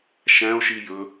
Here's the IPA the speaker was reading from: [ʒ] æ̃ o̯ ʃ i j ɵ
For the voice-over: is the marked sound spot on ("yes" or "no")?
no